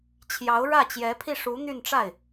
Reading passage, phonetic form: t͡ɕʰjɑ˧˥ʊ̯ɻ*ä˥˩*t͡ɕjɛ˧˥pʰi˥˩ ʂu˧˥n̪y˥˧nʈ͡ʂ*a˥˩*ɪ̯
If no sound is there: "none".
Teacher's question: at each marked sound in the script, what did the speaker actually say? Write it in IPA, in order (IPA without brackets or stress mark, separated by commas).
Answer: ä˥˩, a˥˩